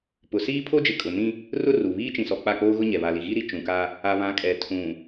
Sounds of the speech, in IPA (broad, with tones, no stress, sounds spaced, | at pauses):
p ʊ˨ s iː˦ pʰ o˦ d͡ʒ ɪ˨ kʼ ʊ˨ n ĩ˦ | r ʊ˦ r u˨ β iː˦ t͡ʃ ĩ˨ s ɔ˨ k͡p a˦˨ k͡p oː˦ ɣ ʊ˦ ɲ ɛ˨ β a˨ l i˨ ɣ i˦ ɾ i˨ t͡ʃ ũ˨ k a˦ | a˨ β ã˨˦ kʼ ɛ˨ tʰ ũ˨